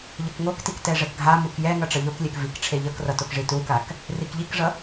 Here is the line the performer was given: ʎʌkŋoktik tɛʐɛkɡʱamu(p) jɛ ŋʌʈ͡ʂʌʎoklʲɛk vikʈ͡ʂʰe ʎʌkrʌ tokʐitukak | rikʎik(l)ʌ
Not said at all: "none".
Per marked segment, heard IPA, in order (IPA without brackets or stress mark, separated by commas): k, ʐ